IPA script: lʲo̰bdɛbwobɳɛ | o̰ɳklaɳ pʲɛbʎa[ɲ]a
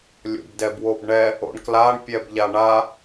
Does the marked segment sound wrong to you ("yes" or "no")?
yes